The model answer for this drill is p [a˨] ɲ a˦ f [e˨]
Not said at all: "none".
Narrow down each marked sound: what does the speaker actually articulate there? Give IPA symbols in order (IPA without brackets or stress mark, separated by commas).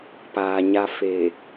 aː˨, e˨